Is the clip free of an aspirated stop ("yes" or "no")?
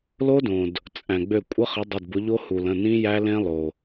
yes